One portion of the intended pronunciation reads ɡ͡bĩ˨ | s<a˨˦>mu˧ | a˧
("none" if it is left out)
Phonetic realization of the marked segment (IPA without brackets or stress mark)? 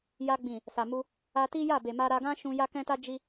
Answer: a˨